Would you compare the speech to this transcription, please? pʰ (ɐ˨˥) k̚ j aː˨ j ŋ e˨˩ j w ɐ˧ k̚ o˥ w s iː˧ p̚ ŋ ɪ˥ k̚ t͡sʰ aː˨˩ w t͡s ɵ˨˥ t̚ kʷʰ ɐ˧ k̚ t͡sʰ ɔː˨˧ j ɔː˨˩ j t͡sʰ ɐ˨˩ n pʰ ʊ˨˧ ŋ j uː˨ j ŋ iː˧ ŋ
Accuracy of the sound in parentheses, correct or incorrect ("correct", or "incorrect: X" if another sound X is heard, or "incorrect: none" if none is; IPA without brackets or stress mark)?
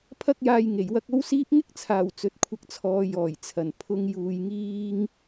incorrect: ɐ˧